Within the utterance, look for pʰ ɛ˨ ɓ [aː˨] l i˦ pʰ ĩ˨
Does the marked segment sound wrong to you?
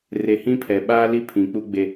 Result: yes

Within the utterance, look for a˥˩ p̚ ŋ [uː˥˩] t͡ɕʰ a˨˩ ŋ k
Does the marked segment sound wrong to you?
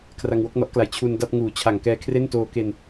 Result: yes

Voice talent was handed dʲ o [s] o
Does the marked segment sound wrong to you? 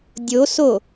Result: no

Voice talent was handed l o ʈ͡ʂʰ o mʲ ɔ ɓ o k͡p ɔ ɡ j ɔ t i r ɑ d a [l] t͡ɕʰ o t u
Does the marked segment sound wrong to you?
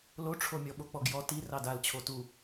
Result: no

